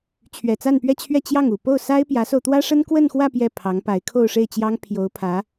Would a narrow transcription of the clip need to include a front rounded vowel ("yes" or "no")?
no